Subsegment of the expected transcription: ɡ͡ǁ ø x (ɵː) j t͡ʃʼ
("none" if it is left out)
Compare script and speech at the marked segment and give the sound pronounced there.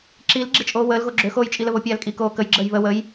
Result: oː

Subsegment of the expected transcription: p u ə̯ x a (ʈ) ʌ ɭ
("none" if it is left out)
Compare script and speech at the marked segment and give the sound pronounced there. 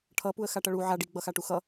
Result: ʈ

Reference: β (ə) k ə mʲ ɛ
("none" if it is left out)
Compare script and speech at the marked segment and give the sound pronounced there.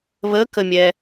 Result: ə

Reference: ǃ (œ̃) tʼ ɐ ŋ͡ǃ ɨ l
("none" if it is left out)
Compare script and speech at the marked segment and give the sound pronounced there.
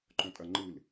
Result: œ̃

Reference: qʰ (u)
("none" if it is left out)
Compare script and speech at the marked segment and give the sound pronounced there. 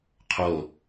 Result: o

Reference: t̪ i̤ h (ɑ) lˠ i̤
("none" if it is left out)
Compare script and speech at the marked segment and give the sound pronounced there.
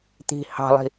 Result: ɑ̤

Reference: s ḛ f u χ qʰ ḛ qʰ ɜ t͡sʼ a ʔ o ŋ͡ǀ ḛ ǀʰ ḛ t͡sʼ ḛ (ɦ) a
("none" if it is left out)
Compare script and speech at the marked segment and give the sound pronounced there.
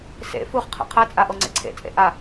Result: ʔ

